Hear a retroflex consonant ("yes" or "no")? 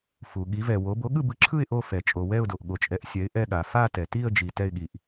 no